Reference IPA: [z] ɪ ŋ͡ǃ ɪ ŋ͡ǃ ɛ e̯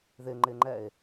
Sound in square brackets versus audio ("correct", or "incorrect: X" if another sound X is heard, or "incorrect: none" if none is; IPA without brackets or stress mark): incorrect: ð